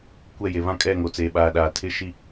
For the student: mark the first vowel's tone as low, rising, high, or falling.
falling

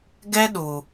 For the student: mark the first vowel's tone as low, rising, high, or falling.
high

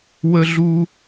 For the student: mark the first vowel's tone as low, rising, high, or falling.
high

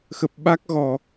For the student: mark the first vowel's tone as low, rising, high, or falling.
low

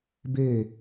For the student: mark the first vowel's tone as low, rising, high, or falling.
falling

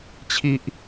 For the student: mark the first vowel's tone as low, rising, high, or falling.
high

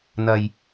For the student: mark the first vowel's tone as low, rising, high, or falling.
low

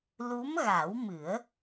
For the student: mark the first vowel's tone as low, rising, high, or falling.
rising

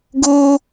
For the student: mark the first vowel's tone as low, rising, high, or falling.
high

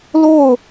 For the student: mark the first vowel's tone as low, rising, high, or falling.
falling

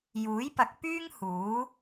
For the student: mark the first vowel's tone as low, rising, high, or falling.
rising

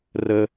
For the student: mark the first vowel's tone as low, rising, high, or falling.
high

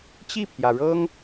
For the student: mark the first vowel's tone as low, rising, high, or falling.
falling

